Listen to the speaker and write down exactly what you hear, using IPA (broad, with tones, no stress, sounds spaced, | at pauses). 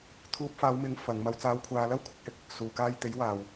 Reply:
t̪ʰ uː˧ p̚ f aː˨˧ w m ɪ˨˥ ŋ f ɐ˨˧ ŋ m ɐ˧ w t͡s aː˧ w kʷʰ aː˧ l ɐ˥ w kʷʰ ɪ˨˥ k̚ h ɪ˨ k̚ | s uː˨ k aː˧ j t̪ e˨˥ j w aː˨ w